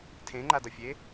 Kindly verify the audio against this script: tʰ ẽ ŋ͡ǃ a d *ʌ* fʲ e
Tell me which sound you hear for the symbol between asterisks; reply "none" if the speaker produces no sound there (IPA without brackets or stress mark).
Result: ʌ